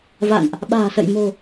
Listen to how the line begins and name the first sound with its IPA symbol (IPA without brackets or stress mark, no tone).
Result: v